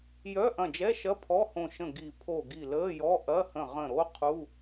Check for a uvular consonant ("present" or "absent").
present